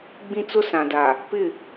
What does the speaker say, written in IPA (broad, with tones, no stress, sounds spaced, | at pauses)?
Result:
ɡ͡b ĩ˦ t͡s ʊ˦ s ã˨ d a˨ | p ɪ˦˨